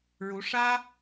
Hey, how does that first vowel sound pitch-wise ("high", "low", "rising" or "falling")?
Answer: rising